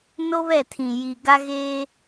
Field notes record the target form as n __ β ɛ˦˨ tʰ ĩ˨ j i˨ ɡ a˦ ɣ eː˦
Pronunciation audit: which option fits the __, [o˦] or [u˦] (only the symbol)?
o˦